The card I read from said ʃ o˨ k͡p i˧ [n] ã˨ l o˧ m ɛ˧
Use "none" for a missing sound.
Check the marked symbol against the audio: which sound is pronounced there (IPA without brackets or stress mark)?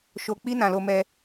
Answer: n